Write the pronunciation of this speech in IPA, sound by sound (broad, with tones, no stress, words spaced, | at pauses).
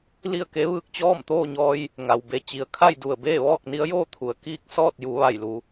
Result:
li˥˨ə̯ke˧˥ʋɯː˧k̚ t͡ɕɔː˥˨mt̪oː˥˨ɲɔː˧j | ŋa˩wbe˧ t͡ɕi˩˧ə̯kʰa˥˨j du˧˩ə̯beː˥˨ ʋɔː˥˨k̚ni˧˥ə̯joː˥˨t̪ʰu˩ə̯ kiː˥˨k̚ sɔː˥˨t̚ju˩˧ ʋa˧˩jlu˩˧